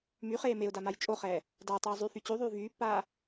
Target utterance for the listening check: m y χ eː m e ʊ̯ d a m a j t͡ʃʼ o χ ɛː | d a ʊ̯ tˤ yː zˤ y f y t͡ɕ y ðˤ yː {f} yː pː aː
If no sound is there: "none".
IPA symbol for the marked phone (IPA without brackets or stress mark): v